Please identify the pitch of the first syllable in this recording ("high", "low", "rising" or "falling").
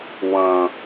high